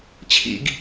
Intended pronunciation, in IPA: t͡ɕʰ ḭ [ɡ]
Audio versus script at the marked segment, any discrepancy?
no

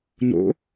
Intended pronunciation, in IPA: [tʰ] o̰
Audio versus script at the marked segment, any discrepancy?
yes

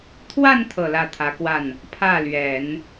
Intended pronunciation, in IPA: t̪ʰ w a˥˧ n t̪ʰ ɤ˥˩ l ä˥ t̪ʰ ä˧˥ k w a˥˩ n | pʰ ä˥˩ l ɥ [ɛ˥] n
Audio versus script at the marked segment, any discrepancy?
yes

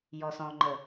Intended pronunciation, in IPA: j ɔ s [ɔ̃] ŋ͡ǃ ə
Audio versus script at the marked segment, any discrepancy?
no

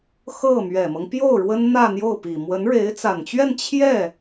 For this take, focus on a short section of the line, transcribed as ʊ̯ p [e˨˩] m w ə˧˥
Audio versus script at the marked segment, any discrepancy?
yes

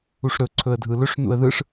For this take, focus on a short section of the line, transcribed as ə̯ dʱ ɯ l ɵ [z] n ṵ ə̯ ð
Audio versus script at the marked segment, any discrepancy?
yes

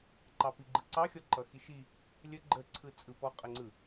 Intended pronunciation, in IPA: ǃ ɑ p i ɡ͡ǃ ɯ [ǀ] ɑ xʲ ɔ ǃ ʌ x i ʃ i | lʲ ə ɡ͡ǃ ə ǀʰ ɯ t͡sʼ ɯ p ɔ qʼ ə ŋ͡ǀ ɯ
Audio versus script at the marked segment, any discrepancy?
no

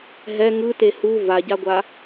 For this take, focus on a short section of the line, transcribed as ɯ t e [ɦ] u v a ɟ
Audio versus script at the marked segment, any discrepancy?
yes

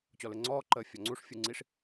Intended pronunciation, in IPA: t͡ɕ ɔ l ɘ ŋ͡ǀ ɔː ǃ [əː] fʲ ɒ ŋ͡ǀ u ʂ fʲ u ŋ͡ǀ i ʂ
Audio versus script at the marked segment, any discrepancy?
no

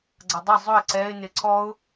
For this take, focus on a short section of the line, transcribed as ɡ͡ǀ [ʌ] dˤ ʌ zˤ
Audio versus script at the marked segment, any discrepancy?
no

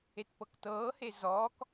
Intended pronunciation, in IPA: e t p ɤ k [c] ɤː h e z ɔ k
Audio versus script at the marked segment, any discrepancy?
yes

